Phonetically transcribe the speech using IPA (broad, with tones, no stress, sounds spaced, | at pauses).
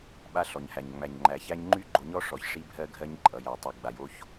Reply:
ɓ a˦ ɬ ɔ˨ ɲ h æ˨ ɲ ŋ͡m æ˨ ɲ ŋ͡ǃ æ˨ ç æ˦ ɲ ŋ͡ǃ y˦ ɡ͡ǃ o˨ ɲ ɔ˦ ʂ ɔ˨ ç ʂ i˦ bʱ ɜ˦ ɡʱ ɜ˦ ɲ ǃʼ ʌ˨ j æ˨ tˤ o˨ ɡ͡b a˨ j o˦ ç